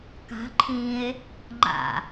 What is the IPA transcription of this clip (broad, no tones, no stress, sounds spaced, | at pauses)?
k a̤ ǃʰ ĩ e̯ | ŋ͡ǃ a̰